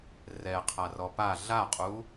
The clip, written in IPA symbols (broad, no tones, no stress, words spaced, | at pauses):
rɛqʰarɔ pa ɮaqʼu